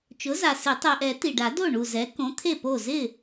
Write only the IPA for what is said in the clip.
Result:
t͡ʃ ʊ˩˥ z a˩ s ɪ˨˩˦ tˤ ɛ˩ ʔ ɛ˨˩˦ t i˩ ɖ a˨˩˦ d o˥˩ ɳ u˧˩ z ɛ˩˥ k õ˩˥ t̪ʰ e˥˩ p o˥˩ z ɪ˥˩

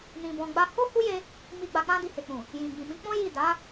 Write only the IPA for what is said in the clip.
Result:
n ĩ˧ b ɔ̃˧ ɡ͡b a˦ h o˦ h u˦ j e˧ | m i˧ ɡ͡b a˧ k͡p ã˦ d i˧ h e˨ k͡p ũ˨ | j ĩ˨ ɡ͡b ĩ˨ m ĩ˨˦ k͡p ɔ̃˦ j i˦˨ d a˨˦

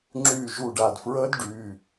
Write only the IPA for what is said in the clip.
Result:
ŋ͡ǁ yː˧˩ ʒ u˧˩ ɖ a˧˩ d f ɹ əː˦˥ d ɖ yː˩˧˩

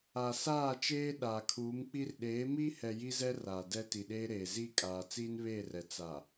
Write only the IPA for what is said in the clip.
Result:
a˨ s aː˦˨ t͡ʃ eː˦ ɗ aː˨ kʰ uː˨˦ m k͡p i˦ r ɗ eː˨˦ m iː˦ h ɛ˨ j i˦ z ɛ˦ r aː˨ d ɛ˦ t i˨ ɗ eː˦ ɾ eː˨ z i˦˨ kʼ aː˨ t͡s iː˦ n β eː˦˨ r ɛ˨ t͡s a˨

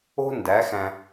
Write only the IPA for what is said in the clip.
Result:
o̤˥ n d æ˨˥ x æ̃˧

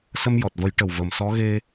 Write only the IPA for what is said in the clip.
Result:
s ə˧ m j ɔ˨˩ t̚ v ə˨˩˦ j ʈ ə˨˩ w v ə˨˩ m s ɔ˧˥ ɣ e˧

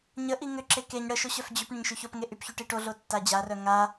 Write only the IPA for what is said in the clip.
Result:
ɲ ə ʔ i ŋ ʏ ǁ e k e ɲ ɽ ə ʃ o ɕ œ f d͡ʑ y p ɳ ə ɲ ʃ y ç o p ŋ e ʔ y p ç y ʈ i ʈ o ɮ o tː a d͡ʑ a r œ ŋ a

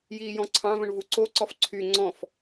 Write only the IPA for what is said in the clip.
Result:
j iː j ɔ̃ ǀʰ ɑ̃ v ə̃ ɳ v u ǀ o ǀ ɔ f ǀʰ y ŋ͡ǀ ɔ̃ f

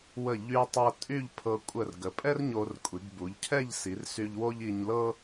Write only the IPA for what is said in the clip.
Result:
w ə˧˩ ʎ y˧ tˤ ɤ˧ tʼ y˥˧ ʎ pʰ ɤ˧ kʷʼ ə˧˩ r ɡ ə˩˧ pʼ ɛ˥ r ɲ o˧ r kʷʼ i˩˧ ɡ b u˩˧ ʎ cʰ ɛ˥˧ ʎ s i˩˧ r s y˧ ʎ w o˥ ʎ i˧ ɲ l ɤ˥

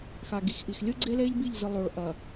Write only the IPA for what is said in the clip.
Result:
x a˨ ɡ i˨ x ʔ i˨ x lʲ ɯ˦ ɡ͡ǀ e˦ l e˦ ʎ b i˦˨ ʎ z ɯ˨ lˠ o˨ ɭ ʔ ɐ˨

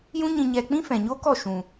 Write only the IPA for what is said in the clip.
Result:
j ũ˦ ɲ ĩ˧ ɲ ɛ˧ k͡p ĩ˦ f ɛ̃˨ ɲ o˦ k ɔ˦˨ ʃ ũ˨

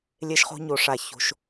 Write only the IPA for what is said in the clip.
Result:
lʲ e˦ ʃ χ o̤˦ ɲ o˨ ʂ a˦˨ ç o̤˦ ʃ

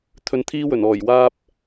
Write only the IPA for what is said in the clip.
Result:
t̪ʰ ɵ˧ n t̪ʰ iː˥ w ɵ˨˩ n ɔː˨˩ j w aː˧ p̚

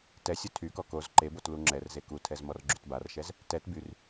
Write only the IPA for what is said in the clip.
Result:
t ɛ sʲ o tʰ y k ɔ k o z ǃ e b o t l u ŋ͡ǁ ɛ r z e k u tʰ ɛ z m ɔ r ɡ͡ǁ y t b a r ʃ ɛ z | t ɛ t b y r

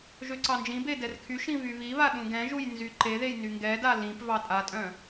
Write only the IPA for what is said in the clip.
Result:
ʒ ø ǀ ɑ n d͡ʒ ĩ b e d ɛ r kʰ y ʃ ĩ β y β i β a ɗ ũ ɡ ɛ̃ ʒ u j n z y ǃ e ð e j n y ŋ ɡ ɛ d a l ĩ p v ɑ tʼ a tʼ œ̃

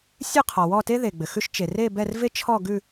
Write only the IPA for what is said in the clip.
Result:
sʲ ʉ˥˧ qʰ ɔ˩ w ɔ˥˧ t e˥ ð e˩ ɡ͡b ɘ˩ x ʉ˥ ʃ t͡ʃ e˩ r e˥˧ b ɛ˥˧ r v e˥ t͡ʃʰ ɔ˥˧ ɡ ʉ˥˧

